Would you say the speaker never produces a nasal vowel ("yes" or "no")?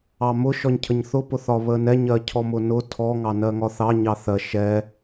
yes